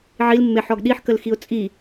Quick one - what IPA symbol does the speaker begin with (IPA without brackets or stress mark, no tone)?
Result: ʕ